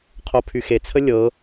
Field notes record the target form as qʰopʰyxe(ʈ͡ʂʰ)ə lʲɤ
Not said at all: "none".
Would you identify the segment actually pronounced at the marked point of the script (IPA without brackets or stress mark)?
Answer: t͡sʰ